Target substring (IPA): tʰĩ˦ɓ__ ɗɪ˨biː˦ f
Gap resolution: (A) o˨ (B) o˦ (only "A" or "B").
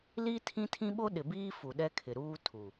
B